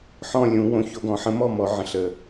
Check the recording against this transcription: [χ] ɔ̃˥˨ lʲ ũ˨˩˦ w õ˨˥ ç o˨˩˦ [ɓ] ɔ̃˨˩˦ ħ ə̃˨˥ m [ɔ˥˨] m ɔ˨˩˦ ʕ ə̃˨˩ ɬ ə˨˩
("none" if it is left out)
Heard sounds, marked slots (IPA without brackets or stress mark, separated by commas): ħ, ɡ, ɔ˥˨